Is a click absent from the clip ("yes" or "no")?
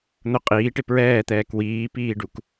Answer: yes